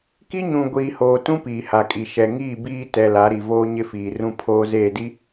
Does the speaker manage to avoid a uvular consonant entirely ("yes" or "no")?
yes